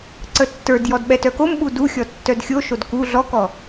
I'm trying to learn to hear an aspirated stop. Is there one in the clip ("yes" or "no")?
no